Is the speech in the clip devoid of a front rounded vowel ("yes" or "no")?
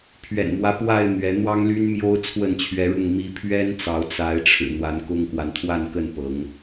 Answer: no